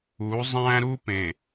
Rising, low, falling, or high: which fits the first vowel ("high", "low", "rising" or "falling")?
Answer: rising